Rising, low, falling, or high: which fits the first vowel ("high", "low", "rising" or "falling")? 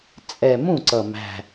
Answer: low